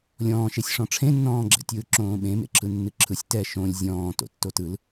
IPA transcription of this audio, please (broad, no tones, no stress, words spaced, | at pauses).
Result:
lʲɔ̃ːʃesʲʂɔ̃ ʈ͡ʂʰẽnːɔ̃ːɡ͡ǁɛ̰tʲɯː ǁõːɓẽ mḛǁʰɯnːɨǁʰɯsʲ tɛ ʃõlʲ zʲɔ̃ː to̰tːotɯl